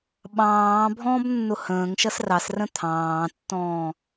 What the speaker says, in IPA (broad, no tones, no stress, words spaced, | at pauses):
ɓɑ̃ː bʱɔ̃ːbnːʊhə̃ːŋʃʌs rɑsrə̃ t̪ʰɑ̃ːtːɔ̃ː